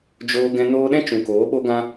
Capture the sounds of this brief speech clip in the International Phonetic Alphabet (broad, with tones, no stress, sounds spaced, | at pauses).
d͡ʒ oː˧ ɡ ɛ̃˧ n oː˧ ɗ ɛ̃˦ t͡ʃ ũ˨ k oː˨˦ ɓ o˦ ɡ ã˦